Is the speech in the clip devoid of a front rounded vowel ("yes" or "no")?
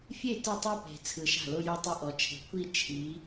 yes